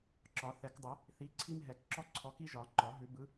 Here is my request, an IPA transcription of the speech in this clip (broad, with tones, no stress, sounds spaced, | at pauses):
ǁ ɒ˨˩˦ θ ɛ˨˩˦ k dˤ ɪ˨˩˦ | θ i˨˥ ǀʰ i˥ m ɦ ɛ˨˩˦ k ǁ ɔ˥ ǀʰ ɔ˨˥ k i˥ ʒ ɒ˨˩˦ ŋ͡ǃ ɒ˨˩˦ ɦ ʉ˨˩˦ b ɯ˨˥